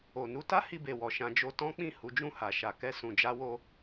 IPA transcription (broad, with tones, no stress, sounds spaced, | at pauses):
o˨ n u˧ t a˦ h i˧ b e˨ w ɔ˨ ʃ ã˧ d͡ʒ o˧ t ɔ̃˦ k͡p ĩ˦˨ h u˨˦ d͡ʒ ũ˦˨ h a˨ ʃ a˨ k ɛ˧ s ũ˨ d͡ʒ a˧ w o˧